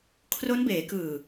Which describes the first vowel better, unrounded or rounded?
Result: rounded